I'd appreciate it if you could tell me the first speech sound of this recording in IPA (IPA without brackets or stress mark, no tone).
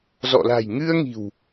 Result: z